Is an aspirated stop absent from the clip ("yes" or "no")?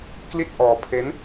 no